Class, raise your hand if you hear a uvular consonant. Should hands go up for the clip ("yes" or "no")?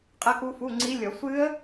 yes